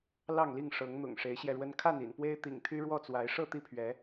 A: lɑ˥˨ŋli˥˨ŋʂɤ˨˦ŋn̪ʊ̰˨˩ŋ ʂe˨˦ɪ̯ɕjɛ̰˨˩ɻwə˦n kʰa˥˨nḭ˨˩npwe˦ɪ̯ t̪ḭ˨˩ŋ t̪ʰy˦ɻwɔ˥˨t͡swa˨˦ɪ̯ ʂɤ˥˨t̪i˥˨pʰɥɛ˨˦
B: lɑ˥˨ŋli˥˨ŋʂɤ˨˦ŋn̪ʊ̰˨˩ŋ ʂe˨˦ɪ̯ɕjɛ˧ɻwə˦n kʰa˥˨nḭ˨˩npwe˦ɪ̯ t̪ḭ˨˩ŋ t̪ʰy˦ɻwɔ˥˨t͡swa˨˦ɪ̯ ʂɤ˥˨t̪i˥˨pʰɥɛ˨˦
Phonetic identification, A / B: B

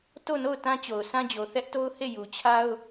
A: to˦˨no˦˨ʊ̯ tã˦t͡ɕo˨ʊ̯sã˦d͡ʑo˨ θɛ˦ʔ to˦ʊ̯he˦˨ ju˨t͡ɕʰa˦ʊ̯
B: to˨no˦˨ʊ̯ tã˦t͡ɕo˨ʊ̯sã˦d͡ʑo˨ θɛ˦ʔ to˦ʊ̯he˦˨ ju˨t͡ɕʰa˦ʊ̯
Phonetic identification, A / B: A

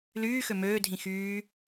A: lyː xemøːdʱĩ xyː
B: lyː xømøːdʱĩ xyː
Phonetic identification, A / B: B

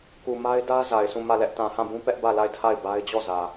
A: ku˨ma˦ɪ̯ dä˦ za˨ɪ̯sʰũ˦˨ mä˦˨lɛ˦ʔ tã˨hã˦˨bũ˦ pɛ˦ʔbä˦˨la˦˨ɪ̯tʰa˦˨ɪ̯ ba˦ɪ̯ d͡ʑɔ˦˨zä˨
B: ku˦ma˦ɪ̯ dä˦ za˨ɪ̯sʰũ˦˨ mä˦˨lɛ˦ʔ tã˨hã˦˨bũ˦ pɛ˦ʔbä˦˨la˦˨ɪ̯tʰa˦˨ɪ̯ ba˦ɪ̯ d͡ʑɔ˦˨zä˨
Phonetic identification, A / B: A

